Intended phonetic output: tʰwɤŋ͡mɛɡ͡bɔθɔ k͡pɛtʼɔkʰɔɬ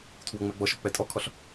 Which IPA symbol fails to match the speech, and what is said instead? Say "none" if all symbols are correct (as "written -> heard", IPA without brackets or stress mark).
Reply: θ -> ʃ